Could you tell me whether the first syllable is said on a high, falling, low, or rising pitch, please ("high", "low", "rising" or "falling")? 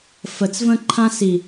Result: low